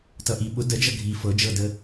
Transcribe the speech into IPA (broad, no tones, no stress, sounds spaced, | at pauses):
t ʌ ʔ i ɓ ʊ d ə d͡ʒ ʌ ɡʱ i f ɤ d͡ʒ ɤ d ə